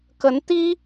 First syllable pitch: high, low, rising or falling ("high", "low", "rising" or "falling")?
rising